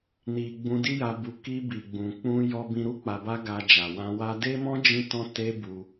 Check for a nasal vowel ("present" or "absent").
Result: present